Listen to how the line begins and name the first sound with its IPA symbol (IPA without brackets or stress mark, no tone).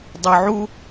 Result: dˤ